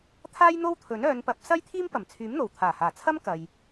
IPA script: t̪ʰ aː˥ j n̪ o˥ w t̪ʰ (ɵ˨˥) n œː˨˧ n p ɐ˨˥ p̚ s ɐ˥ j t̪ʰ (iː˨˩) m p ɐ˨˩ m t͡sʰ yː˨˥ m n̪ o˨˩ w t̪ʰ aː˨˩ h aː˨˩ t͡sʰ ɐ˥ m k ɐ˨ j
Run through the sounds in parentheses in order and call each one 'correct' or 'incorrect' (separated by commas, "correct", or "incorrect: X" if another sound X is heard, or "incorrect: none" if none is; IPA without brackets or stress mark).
correct, incorrect: iː˥